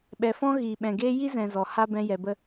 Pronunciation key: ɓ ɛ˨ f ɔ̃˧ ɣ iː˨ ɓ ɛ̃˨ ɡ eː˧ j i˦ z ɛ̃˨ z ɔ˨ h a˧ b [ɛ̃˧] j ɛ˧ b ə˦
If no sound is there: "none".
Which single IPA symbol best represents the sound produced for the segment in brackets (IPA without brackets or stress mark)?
ɛ̃˧